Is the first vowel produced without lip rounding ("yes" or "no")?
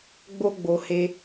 no